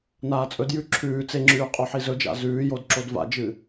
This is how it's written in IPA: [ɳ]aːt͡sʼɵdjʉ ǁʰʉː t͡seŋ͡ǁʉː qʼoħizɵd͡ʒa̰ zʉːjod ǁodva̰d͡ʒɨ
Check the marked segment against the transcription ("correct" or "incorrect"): incorrect